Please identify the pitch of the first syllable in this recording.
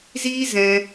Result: high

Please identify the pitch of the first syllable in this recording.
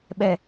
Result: low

